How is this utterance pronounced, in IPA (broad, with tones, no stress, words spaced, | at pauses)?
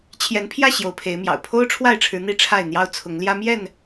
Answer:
t͡ɕʰjɛ˨˦npʰjä˥˨ ɕjo˨˦ʊ̯pʰe˨˦ɪ̯mjɑ̰˨˩ʊ̯ pʰo˦ʊ̯ʈ͡ʂʰwa˥˨ɪ̯ʈ͡ʂʰɻ̩˨˦ n̪i˥˨ʈ͡ʂʰa˥˨ɪ̯n̪jɑ˦ʊ̯ t͡sʰʊ˨˦ŋljä˦mjɛ˥˨n